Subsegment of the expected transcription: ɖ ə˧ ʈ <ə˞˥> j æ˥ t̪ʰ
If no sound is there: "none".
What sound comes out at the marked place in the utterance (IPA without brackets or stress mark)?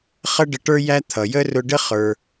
ə˞˥